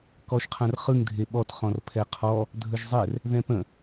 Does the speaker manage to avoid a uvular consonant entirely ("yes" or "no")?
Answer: no